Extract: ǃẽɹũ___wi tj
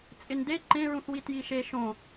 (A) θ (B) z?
A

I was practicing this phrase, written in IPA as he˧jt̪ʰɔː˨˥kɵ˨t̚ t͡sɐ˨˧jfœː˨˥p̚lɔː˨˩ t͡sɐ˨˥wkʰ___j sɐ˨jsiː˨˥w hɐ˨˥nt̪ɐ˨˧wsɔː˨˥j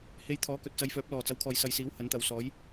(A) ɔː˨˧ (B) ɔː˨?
B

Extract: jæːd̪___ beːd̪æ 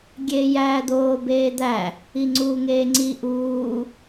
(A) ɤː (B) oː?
B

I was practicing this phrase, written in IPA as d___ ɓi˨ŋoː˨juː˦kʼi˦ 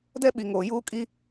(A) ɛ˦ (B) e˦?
A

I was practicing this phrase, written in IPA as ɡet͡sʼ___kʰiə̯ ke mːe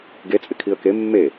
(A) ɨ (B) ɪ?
B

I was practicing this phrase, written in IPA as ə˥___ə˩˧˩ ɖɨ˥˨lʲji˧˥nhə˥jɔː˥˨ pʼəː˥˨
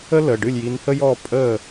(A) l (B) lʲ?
A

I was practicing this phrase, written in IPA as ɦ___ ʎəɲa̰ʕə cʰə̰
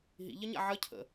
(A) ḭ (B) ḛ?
A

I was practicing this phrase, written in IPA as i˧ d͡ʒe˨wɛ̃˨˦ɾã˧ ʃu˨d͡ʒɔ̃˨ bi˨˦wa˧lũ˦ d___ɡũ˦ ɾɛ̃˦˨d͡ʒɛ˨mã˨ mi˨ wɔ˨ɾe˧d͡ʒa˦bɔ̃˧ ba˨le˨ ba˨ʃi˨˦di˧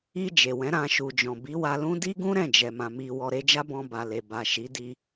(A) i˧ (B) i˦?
B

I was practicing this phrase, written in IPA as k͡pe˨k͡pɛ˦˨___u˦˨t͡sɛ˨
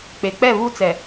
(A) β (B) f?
A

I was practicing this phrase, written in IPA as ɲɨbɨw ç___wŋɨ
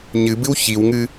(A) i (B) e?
A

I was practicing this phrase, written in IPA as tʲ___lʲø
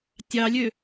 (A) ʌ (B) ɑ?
B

